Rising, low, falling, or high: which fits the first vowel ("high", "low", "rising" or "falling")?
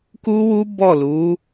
high